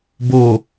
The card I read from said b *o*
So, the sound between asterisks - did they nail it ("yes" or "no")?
yes